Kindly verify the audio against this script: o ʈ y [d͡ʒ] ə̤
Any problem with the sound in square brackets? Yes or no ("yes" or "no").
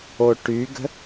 yes